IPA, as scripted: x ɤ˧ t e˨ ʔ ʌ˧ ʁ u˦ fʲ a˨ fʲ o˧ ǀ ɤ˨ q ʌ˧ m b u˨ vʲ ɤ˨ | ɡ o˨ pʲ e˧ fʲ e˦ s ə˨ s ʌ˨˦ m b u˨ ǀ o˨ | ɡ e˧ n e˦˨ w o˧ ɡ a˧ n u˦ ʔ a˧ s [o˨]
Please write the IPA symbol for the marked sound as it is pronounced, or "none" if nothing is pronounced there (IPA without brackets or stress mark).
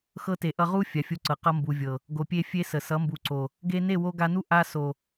o˨